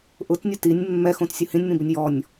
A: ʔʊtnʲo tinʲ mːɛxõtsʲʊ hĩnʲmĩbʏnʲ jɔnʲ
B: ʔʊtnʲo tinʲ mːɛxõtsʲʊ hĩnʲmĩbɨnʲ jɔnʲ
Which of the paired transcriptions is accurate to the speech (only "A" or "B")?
A